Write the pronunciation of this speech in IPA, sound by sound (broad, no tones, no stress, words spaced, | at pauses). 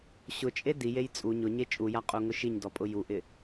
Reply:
ɕʊt͡ʃʼe dijej t͡sʼu ɲʊɲe t͡ʃʼuja qʼuŋʊʃiɲdɔ pʼʊjuʔɪ